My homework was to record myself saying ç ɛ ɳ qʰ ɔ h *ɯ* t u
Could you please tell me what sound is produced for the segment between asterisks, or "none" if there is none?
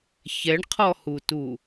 u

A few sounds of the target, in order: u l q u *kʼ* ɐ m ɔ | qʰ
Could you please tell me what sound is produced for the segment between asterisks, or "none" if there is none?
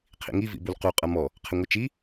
qʼ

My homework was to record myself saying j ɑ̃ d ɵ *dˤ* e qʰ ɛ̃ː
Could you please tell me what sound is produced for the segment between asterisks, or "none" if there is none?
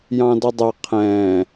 dˤ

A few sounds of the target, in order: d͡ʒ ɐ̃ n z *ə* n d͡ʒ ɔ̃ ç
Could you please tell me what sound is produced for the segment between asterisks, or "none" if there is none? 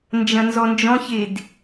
ɔ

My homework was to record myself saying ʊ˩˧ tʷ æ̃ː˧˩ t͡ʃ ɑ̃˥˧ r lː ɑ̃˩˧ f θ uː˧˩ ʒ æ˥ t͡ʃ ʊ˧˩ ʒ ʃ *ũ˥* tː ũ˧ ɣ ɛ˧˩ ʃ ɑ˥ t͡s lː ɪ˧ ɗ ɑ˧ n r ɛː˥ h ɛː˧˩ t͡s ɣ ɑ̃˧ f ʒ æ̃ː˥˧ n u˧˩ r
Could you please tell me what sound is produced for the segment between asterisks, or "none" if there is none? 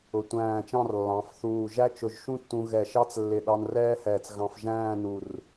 ũ˥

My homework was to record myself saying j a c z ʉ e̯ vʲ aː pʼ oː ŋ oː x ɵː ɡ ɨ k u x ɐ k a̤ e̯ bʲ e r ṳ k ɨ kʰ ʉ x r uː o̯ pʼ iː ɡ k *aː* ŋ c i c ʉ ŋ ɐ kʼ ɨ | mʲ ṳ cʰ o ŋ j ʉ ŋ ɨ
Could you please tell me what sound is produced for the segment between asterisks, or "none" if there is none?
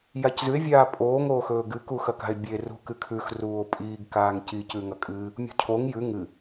aː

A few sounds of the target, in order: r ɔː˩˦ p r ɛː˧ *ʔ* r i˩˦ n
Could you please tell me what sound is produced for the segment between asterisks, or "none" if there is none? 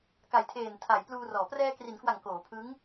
k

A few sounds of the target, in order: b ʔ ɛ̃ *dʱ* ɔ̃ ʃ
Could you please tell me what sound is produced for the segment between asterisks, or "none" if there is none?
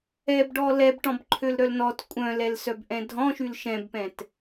dʱ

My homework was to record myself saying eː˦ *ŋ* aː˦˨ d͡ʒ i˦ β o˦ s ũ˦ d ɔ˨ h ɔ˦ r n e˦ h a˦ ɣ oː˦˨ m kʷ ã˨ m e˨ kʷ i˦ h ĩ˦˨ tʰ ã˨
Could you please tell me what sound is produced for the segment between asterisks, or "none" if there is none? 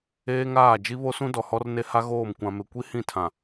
ŋ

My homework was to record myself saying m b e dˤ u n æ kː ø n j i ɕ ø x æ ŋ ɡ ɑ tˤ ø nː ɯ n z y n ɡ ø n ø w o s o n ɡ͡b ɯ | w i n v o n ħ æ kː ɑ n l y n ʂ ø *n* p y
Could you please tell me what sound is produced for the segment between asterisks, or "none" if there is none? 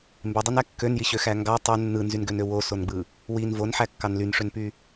n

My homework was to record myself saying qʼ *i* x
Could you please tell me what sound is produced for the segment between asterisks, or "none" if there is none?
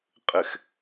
ɪ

